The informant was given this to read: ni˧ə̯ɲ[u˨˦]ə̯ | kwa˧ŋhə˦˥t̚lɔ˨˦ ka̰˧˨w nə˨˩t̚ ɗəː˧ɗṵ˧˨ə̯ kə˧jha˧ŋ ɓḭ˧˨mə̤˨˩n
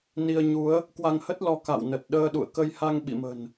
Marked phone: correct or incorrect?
correct